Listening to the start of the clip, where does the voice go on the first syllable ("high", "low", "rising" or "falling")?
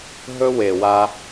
high